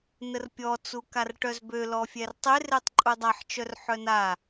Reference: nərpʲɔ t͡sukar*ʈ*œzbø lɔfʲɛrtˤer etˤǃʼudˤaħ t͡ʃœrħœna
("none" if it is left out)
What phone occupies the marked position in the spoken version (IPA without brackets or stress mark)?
ʈ